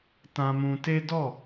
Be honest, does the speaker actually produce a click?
no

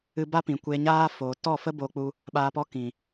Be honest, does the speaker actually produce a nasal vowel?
yes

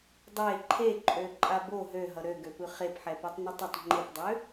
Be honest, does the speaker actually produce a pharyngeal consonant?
yes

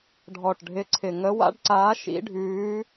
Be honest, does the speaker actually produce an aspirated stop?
yes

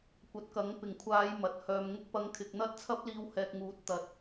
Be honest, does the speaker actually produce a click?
no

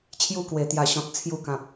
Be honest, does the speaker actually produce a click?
no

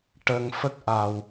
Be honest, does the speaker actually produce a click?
no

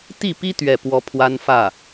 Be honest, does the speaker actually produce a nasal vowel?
no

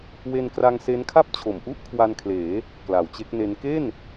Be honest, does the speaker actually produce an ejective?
no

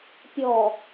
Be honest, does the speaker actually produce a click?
no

